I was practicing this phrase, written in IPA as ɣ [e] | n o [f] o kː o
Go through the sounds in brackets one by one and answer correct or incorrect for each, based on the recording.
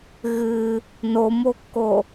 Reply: incorrect: ɨ, incorrect: m

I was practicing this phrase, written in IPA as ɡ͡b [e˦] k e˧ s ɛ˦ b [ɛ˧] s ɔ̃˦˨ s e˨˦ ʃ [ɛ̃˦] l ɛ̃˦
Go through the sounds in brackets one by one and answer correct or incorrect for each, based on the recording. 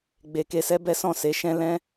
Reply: incorrect: e˨, incorrect: ɛ˦, correct

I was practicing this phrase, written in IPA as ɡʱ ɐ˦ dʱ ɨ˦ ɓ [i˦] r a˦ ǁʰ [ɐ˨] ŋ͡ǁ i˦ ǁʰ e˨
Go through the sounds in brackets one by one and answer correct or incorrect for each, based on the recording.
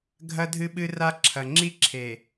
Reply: incorrect: ɨ˦, correct

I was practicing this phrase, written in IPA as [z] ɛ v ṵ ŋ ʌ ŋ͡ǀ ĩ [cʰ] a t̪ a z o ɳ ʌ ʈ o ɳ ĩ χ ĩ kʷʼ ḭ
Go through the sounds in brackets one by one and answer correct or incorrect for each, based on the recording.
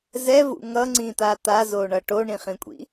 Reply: correct, incorrect: t̪

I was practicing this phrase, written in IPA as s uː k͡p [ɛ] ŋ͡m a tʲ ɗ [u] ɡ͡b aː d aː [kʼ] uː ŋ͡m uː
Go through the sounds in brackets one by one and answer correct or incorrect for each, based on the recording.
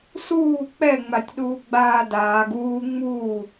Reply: correct, incorrect: uː, incorrect: ɡ

